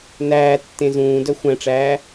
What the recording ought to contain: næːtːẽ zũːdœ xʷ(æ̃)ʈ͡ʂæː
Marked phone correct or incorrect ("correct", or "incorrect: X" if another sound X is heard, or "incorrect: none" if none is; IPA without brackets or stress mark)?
correct